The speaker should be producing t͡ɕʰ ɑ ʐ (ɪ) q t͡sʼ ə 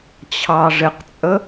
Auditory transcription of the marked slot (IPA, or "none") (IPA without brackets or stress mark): ɪ